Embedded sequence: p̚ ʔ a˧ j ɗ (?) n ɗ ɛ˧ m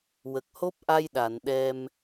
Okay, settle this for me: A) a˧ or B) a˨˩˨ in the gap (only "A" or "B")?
B